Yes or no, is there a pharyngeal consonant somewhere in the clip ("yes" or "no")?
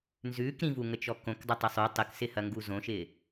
no